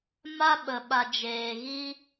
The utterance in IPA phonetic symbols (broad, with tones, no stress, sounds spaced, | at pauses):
m a˦ ɓ ə˨ ɓ a˨ d͡ʒ eː˨ ɣ i˦